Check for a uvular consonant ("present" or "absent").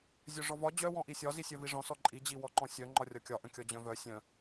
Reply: absent